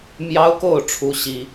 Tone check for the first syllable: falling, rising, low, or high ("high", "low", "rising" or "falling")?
high